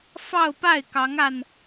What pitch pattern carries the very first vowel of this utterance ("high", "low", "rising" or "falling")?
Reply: falling